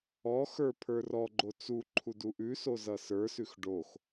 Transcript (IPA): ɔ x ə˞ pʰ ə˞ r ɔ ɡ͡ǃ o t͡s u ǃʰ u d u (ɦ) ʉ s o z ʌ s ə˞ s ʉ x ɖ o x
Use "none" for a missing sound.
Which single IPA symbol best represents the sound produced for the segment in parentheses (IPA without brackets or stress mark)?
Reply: ʔ